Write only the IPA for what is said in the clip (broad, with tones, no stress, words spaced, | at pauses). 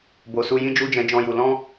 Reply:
bo˨su˧ jĩ˦d͡ʒu˦d͡ʒɛ̃˧ d͡ʒɔ̃˦ju˧ lɔ̃˦